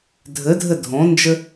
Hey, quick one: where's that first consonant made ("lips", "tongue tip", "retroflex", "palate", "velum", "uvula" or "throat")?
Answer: tongue tip